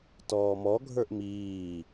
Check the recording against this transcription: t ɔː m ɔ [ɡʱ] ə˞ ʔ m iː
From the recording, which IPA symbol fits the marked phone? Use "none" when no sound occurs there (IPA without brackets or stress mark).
ɡʱ